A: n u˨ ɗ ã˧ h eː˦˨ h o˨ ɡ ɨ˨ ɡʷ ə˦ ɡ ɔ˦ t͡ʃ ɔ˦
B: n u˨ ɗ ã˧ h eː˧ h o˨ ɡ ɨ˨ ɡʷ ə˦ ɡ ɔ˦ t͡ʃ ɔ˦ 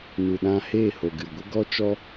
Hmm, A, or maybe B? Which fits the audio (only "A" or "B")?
A